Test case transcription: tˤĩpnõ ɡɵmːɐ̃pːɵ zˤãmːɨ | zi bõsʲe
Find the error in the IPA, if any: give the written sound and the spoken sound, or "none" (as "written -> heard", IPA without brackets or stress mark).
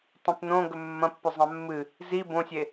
none